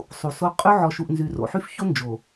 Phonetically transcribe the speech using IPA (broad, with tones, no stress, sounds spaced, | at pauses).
sˤ u˨ s o˦ qʼ y˦ ʕ ɔ˨ ʃ u˨ ʔ n z y˨ r o̰˨ ħ y˦ f ç o˦ n d͡ʒ o˨